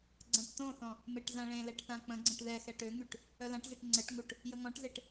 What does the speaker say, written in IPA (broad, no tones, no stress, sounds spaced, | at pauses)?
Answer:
ɡ͡ǀ ã ʈ t õ θ ɔ̃ | m e ʈ z ã ɭ ẽ l ɛ ʈ θ ã k͡p ə̃ ɡ͡ǀ ə̃ ʈ ð ɛ x ɛ ʈ ø ŋ y ʈ | œ l ã ʈ z ɛ ʈ ŋ͡ǀ ɛ ʈ ŋ u ʈ | j ə ŋ ɔ̃ ʈ z e ʈ